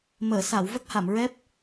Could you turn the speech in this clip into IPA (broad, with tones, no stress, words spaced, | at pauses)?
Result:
məː˨˩˨sa˨˩˨w və˦˥k̚ha˨˩˨mɹɛ˦˥p̚